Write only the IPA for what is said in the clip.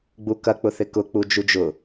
ɡ͡bukɐk͡pʊ θɪkʊ k͡pud͡ʒud͡ʒʊ

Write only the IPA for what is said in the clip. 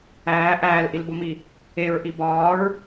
æː ʔæːlʔilbomi | eɹʔi bɒːɹ

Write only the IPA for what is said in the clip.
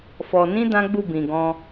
fɔ˨nĩ˧ dã˦ ɡ͡bu˦˨ bĩ˨ɡɔ̃˧

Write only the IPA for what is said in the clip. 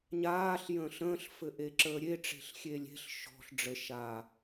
ɲaːɬ jə̃ːɬə̃ːɬ fɘʔeǁəːɾʲe ʈ͡ʂe̤ɬxʲelʲe̤ɬ ʃɔ̤ɬ ɖ͡ʐə ʃa

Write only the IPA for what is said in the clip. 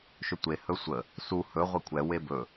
ʃɵtʷe hɵsʷə | su hɵ ʁʷɛkʷʰɛ webɵ

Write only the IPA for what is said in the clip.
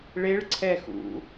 ɭeɭǀʰɛ xṵ

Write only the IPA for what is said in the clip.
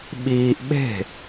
ɓiːʔ ɓe̤

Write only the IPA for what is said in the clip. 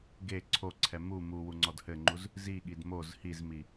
ɡe ǀʰoǀʰɛ mu muwu ŋ͡ǀɔdhɘŋ͡ǃuz | ziɠid moz hizmi

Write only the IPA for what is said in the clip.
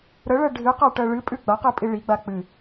ɾəɭɜ ɖʱɨqaʈɜ ɭɨpʼʉ ɡ͡baqɨpʼi ɭiɡ͡ba k͡pɨ

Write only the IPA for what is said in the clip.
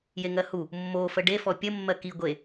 jeŋɜhu | mːo fəɖefɔ pʲə mːɜki ɡʷe

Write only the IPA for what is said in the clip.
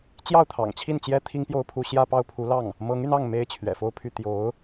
t͡ɕjɑ˥˩ʊ̯t̪ʰɑ̰˨˩ŋt͡ɕʰi˥˩nt͡ɕjɛ˥ t̪ʰi˥ŋpjo˥˧ʊ̯pʰu˥˧ ɕjä˥˧pɑ˥˩ʊ̯pʰu˧˥lɑ˥˩ŋ | mɤ˧˥ŋy˧nɑ˥˩ŋ me˥ɪ̯t͡ɕʰɥɛ̰˨˩fo˥˧ʊ̯pʰy˥˩ t̪jo˧˥ʊ̯

